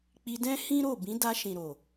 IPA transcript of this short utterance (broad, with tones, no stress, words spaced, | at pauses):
k͡pi˧dɛ̃˦hĩ˦ɾo˦˨ bĩ˨˦da˧ ʃĩ˨ɾo˨